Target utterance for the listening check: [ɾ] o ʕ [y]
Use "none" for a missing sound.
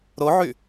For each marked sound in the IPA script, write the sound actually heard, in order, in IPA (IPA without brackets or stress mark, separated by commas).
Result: ɾ, y